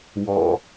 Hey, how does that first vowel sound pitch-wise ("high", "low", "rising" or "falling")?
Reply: low